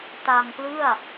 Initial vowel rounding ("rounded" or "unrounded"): unrounded